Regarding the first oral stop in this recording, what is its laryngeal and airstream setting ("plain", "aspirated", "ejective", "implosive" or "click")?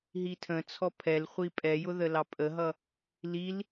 aspirated